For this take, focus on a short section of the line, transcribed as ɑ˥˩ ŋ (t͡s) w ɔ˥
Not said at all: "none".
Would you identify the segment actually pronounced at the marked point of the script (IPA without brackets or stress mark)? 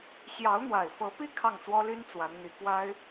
t͡s